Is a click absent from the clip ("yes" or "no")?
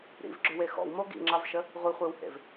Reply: no